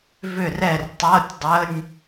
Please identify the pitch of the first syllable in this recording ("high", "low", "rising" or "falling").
falling